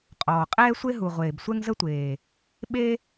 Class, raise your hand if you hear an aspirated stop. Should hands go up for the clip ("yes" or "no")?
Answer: no